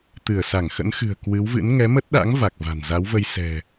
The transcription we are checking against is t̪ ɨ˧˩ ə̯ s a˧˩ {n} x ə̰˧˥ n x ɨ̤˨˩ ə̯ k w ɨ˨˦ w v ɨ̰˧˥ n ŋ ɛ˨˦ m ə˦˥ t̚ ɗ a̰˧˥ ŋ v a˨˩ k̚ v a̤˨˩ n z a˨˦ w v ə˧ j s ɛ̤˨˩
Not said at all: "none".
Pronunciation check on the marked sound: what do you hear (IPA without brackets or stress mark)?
ŋ